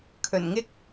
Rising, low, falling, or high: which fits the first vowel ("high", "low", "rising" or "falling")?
low